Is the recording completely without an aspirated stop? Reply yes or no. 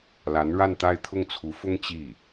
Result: no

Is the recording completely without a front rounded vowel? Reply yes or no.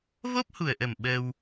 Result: yes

